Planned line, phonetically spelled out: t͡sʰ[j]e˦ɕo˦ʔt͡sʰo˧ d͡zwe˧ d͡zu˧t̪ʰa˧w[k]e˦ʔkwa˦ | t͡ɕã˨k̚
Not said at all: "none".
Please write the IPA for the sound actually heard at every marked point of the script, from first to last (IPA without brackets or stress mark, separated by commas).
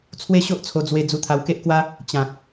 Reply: w, k